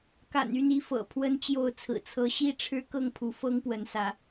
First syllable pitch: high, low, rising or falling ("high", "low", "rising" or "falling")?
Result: low